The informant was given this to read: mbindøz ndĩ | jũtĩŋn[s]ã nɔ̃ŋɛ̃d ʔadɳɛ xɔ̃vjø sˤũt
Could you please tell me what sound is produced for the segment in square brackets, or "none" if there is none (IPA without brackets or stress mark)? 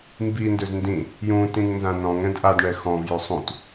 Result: z